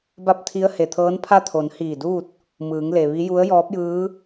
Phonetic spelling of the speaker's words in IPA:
ba˥˨p̚t̪ʰi˧˥ə̯ he˩t̪ʰɤː˧˥n pʰa˥˨t̪ʰo˩˧n hiː˧˩duː˥˨t̚ | mɯː˩˧ŋle˩ʋi˧˥ ju˧˥ə̯jɔː˧˥p̚jɯː˧˥

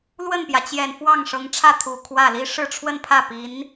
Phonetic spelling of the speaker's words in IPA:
lwə˥˩npjä˩t͡ɕjɛ˨˩n fwɑ˥˩ŋʂɤ˧˥ŋʈ͡ʂʰä˥˩ t̪ʰu˨˩ kʰwä˥˩ li˥ ʂɻ̩˥˧ʈ͡ʂʰwə˥˧npʰä˥˩ pi˧˥n

